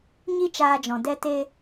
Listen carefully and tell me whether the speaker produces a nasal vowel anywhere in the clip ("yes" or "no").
yes